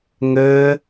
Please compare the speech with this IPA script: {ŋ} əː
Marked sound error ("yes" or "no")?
no